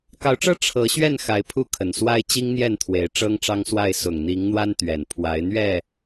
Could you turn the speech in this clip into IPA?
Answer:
k ɑ˨˦ ʊ̯ ʈ͡ʂ ɤ˦ ʈ͡ʂʰ ɤ˨˦ ɕ ɥ ɛ˥˨ n x a˨˦ ɪ̯ pʰ u˥˨ kʰ ə˨˩ n s w a˦ ɪ̯ t͡ɕ i˦ ŋ n̪ j ɛ˥˨ n t̪ʰ w e˨˦ ɪ̯ ʈ͡ʂ ɤ˦ ŋ ʈ͡ʂ ɑ˦ ŋ s w a˥˨ ɪ̯ s ʊ˨˩ ŋ n̪ i˨˦ ŋ n̪ w a˦ n t̪ ɥ ɛ˨˩ n pʰ w a˨˦ ɪ̯ n̪ ɥ ɛ˥˨

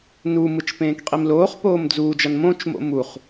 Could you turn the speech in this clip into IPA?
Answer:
n u m ɯ t͡ʃ p ẽː k qʼ i m l oː χ p oː m d͡z uː d͡ʒ ʌ n m õ t͡ʃ m o̰ m u χ

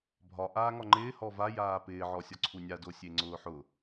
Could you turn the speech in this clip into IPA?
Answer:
bʱ ɒ ʔ aː ŋ ɒ ŋ͡ǃ ɪː h ɔ v a j aː p ɪː ʕ ɔ sʲ ɒ ǀʰ u nʲ a d o sʲ e ŋ͡ǀ ʊː ħ ʊ

